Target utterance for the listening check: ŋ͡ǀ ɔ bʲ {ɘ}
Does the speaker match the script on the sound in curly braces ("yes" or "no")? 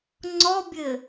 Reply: yes